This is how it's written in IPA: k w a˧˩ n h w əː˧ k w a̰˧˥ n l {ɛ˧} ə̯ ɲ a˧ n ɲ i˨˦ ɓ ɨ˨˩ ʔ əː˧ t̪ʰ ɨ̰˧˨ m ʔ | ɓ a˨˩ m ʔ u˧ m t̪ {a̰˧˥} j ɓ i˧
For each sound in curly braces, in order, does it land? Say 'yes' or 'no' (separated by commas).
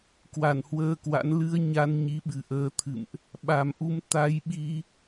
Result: no, no